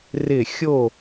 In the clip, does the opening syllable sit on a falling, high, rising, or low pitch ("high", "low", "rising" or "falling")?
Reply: falling